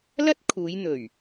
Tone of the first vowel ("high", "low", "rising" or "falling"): high